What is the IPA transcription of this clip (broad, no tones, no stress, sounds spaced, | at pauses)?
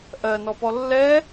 ʔ ɜ n ɔ p ɔ lː ɛ